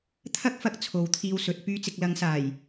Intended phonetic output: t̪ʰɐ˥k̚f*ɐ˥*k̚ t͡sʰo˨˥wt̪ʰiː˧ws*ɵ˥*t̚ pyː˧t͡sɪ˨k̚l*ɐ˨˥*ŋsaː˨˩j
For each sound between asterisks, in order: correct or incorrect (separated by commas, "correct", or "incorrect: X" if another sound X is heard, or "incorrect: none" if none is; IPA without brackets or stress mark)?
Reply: incorrect: ɐ˧, incorrect: ɵ˨˥, correct